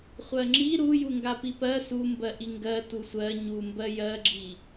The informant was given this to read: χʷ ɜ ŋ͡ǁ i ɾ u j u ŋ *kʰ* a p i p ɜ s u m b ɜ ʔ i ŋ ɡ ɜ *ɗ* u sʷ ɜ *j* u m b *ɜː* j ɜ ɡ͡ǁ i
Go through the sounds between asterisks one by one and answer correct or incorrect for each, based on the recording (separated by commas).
incorrect, incorrect, incorrect, incorrect